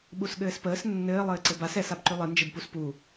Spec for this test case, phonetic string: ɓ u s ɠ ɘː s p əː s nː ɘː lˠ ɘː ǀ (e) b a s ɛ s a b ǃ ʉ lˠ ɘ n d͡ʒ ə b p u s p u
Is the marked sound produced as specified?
no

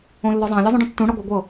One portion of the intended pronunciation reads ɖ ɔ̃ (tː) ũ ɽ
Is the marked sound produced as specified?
yes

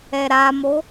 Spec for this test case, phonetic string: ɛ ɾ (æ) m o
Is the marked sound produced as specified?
no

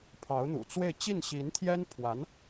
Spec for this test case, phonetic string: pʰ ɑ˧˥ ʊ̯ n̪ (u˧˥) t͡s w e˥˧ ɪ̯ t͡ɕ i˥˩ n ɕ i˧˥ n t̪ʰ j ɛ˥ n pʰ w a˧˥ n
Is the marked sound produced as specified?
no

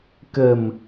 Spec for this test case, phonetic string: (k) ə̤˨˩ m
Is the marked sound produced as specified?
yes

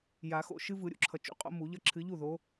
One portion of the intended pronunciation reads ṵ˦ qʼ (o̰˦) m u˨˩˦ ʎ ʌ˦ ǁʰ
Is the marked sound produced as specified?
yes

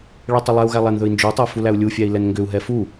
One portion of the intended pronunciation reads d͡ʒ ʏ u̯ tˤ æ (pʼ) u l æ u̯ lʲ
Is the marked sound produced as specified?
no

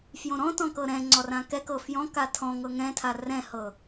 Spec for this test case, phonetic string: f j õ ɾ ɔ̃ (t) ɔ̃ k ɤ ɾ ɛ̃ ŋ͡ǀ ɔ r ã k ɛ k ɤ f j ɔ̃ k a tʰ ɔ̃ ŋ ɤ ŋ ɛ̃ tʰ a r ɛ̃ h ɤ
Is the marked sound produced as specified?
yes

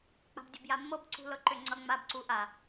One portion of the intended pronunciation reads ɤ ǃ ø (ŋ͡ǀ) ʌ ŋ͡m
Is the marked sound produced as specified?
yes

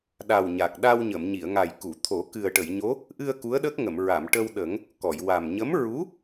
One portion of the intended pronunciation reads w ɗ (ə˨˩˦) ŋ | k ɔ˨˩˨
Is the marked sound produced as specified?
yes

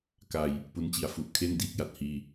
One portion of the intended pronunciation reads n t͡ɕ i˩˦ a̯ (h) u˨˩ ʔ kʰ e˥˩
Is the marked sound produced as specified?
no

